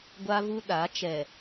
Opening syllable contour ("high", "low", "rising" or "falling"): high